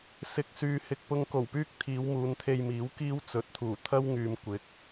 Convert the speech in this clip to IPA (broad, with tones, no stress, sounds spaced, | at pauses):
s ɪ˨ k̚ s yː˨ h ɪ˨ k̚ p ʊ˧ ŋ k o˨˩ w p yː˥ k̚ t̪ʰ iː˨˧ w m uː˨˧ n t̪ʰ e˧ j m iː˨˥ w k iː˥ w t͡s ɵ˨˥ t̚ t̪ʰ uː˨˩ t̪ʰ ɐ˥ w ŋ yː˨ m kʷ ɪ˨˥ k̚